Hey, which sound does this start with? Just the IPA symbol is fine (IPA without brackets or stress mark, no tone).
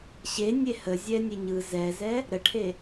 ɕ